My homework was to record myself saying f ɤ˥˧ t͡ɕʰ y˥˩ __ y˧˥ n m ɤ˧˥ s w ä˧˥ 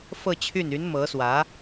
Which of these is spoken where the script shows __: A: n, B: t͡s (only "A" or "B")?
A